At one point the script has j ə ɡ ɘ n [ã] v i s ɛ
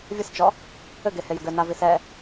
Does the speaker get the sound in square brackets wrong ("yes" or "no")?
yes